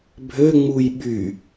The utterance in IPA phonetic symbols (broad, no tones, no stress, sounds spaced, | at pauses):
bʱ ø ŋ͡m u j ɓ y